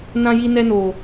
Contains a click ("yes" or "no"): no